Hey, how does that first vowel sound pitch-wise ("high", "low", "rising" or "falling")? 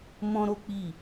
high